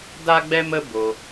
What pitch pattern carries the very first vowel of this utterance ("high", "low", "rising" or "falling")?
high